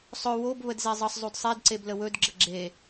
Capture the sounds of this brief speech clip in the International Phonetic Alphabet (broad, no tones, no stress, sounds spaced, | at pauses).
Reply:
sˤ ɵ w o b β ə d z e zˤ ə sˤ zˤ u d sˤ e d ǀ e b l ə w ɵ d ɡ͡ǁ ə ɡ͡ǁ e